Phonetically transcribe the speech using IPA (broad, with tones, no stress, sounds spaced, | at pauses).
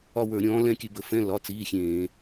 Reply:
ɒ˦˨ w ə˞˧˩˧ ɾʲ ɔ̃ː˨˦ l ɛ̃˦˨ kʲ ʉ˧˩˧ b ə˩˧˩ f ɛ̃˧˥˧ l ɒ˩˧˩ t͡s iː˩˧˩ xʲ ẽː˧˩˧